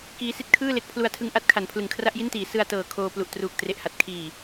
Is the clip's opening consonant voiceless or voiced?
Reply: voiceless